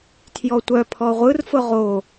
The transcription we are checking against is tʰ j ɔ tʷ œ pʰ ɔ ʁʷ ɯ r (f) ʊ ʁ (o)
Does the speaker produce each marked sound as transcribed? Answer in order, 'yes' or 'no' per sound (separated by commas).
yes, yes